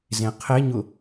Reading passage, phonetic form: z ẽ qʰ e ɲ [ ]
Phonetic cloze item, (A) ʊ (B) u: A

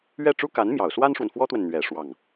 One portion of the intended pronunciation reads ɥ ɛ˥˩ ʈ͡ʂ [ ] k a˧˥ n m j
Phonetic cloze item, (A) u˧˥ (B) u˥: B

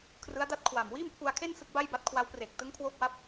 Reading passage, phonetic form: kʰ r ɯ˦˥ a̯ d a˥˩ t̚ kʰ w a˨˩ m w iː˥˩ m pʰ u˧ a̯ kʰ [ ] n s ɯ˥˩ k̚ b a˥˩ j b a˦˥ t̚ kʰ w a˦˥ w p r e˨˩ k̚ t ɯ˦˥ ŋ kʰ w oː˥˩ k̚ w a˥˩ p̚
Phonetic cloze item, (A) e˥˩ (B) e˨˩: A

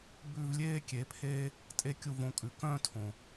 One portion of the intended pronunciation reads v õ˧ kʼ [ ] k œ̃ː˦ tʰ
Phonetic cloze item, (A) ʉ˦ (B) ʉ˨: B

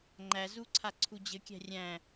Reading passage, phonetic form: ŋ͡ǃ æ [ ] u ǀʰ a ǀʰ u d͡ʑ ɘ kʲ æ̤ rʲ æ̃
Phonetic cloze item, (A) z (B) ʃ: A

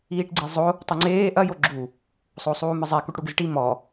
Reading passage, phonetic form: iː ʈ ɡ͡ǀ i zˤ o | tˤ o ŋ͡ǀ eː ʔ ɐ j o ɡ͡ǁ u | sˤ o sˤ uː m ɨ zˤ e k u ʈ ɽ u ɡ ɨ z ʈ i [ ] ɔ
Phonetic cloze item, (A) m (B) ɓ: A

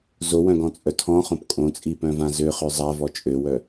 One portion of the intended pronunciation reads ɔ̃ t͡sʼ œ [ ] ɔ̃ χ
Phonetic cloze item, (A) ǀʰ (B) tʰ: B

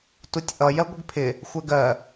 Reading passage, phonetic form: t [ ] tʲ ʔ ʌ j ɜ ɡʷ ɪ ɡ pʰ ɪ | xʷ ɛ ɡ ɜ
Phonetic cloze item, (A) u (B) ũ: A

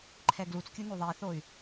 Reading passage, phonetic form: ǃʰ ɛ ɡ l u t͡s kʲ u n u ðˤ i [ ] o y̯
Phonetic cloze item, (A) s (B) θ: B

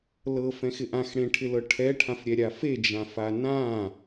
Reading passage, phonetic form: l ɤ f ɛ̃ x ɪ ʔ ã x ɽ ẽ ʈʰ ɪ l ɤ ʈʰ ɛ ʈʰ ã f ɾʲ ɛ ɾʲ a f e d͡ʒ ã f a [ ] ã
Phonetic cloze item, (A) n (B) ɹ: A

